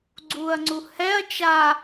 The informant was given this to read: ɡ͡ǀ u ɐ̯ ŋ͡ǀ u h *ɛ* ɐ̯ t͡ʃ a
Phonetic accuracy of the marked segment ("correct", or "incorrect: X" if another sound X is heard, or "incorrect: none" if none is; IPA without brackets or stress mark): correct